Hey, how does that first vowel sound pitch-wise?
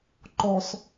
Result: low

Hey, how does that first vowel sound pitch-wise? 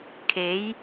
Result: rising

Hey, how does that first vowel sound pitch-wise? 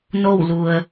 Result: falling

